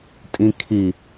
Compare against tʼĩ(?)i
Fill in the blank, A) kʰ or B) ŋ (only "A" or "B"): A